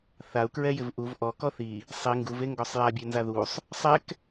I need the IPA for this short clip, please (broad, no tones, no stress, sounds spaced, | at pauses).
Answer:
θ a u̯ k ɹ ɛ j ɪ v ʔ u v ʔ ɔ k ɔ θ i | sˤ i ŋ ɡ u v e ŋ ɡ ɔ sˤ j a bʲ e n z a ð u sˤ | sˤ ɛ k